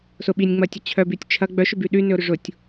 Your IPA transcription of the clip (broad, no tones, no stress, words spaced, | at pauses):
sʊ ɓinʲŋ͡mɐtʲə t͡ɕʰœbytʲ t͡ʃʰɐ ɡ͡bœʃʏby ɗynʏʊ̯ɾʏ ʐʊtʲ